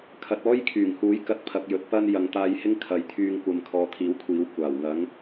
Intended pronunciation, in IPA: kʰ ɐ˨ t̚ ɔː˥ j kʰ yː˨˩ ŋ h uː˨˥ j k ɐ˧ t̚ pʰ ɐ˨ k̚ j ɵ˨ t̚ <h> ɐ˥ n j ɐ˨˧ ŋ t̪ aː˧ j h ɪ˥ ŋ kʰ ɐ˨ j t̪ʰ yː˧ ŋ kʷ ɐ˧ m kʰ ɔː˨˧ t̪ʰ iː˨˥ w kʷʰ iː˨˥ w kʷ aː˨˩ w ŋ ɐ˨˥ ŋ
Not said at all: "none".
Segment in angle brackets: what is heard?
p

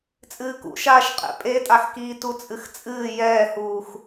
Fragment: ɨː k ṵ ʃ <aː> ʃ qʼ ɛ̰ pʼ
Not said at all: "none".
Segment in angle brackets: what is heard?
aː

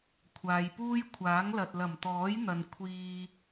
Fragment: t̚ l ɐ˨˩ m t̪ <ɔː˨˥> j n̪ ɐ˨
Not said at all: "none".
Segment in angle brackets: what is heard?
ɔː˨˥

